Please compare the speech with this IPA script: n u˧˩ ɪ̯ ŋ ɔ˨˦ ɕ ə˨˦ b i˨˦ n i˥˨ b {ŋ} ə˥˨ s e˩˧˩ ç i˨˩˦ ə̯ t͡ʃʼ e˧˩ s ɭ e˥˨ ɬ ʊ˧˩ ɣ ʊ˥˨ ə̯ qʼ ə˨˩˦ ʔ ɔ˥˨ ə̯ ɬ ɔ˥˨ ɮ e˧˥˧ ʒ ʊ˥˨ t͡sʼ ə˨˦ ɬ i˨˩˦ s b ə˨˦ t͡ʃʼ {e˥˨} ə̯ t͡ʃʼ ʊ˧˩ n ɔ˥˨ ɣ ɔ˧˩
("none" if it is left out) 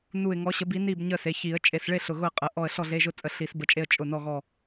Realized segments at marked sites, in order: ɲ, e˥˨

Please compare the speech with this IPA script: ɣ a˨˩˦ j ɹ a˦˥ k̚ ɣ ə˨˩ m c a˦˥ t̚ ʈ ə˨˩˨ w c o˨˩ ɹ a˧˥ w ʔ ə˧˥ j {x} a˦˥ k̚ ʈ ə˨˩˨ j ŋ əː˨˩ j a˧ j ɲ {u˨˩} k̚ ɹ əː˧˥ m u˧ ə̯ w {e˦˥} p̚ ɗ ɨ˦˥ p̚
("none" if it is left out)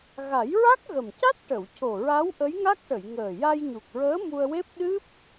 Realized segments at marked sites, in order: ŋ, u˨˩, e˦˥

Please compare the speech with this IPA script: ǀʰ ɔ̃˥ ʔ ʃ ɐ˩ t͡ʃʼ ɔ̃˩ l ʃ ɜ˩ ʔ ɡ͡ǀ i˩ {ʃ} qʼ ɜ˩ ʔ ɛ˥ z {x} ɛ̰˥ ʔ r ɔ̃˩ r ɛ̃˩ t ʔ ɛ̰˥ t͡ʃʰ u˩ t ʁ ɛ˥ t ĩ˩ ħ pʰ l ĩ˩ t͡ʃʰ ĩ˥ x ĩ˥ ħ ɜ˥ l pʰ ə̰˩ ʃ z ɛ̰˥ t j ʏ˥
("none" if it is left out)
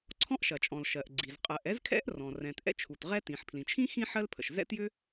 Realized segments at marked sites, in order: z, kʰ

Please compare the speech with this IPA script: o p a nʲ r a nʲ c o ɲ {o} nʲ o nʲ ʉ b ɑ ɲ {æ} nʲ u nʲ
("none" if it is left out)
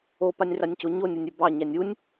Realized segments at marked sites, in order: o, æ

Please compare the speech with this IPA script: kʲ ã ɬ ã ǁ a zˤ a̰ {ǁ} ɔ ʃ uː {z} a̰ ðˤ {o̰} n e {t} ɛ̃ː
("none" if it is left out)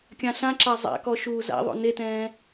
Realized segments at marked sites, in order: k, z, o̰, t

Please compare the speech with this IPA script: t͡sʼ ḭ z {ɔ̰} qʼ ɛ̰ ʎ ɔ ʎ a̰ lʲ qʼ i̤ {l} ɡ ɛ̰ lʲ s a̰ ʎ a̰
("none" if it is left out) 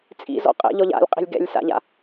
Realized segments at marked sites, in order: ɔ̰, lʲ

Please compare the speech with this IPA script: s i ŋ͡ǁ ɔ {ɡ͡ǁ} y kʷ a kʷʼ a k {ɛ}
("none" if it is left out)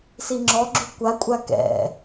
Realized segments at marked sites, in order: ɡ͡ǁ, ɛ̰

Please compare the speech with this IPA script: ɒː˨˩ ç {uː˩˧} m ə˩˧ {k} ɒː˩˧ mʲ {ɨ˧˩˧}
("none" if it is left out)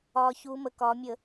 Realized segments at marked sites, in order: uː˩˧, k, ə˧˩˧

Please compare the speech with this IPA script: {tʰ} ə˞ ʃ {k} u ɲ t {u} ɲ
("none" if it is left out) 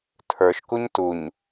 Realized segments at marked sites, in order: tʰ, k, u

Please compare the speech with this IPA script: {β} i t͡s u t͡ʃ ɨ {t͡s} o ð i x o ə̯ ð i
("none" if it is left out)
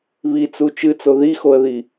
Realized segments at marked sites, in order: β, t͡s

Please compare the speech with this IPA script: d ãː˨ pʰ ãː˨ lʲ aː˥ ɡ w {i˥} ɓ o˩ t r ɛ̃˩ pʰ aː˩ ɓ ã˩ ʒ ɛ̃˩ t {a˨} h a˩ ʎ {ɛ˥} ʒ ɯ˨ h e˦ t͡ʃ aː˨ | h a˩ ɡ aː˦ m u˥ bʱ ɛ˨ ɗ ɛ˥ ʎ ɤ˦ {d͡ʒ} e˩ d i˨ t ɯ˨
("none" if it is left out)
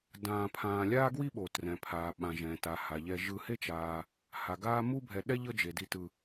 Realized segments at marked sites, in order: i˥, a˩, ɛ˨, d͡ʒ

